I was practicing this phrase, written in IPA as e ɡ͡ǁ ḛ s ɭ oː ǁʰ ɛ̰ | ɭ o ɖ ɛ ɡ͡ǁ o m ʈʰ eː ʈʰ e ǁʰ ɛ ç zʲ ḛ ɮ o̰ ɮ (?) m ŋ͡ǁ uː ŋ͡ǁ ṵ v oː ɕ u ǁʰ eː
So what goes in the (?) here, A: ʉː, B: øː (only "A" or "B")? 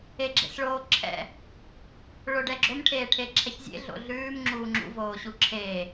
A